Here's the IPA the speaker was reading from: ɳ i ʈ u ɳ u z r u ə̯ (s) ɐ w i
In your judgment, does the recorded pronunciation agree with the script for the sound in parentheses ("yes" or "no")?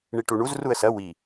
yes